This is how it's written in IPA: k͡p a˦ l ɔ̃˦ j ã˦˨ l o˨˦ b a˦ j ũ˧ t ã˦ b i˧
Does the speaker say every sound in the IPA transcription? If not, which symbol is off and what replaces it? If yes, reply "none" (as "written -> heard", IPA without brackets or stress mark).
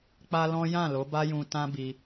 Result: none